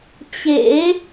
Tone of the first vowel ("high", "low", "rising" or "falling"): rising